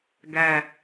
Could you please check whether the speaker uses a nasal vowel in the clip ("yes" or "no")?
no